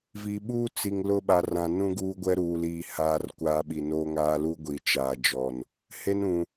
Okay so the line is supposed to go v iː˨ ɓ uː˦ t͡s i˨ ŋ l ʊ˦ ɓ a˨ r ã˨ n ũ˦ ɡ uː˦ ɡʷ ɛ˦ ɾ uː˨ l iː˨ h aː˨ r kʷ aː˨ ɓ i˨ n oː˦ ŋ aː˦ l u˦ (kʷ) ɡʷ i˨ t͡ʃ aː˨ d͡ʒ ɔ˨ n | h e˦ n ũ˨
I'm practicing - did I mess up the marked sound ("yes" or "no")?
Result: yes